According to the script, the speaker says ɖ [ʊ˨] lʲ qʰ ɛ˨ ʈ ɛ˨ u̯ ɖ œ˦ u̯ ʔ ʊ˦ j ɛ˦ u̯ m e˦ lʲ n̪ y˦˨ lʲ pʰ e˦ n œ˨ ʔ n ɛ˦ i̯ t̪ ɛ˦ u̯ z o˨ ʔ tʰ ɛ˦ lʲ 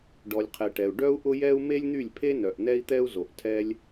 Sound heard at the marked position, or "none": ɔ˨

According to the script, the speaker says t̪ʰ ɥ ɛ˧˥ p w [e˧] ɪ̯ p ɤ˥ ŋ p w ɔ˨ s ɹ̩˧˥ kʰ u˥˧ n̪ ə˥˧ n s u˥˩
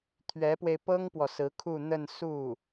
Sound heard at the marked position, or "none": e˧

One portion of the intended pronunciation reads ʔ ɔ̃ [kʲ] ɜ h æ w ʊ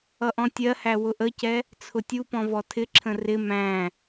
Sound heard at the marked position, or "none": tʲ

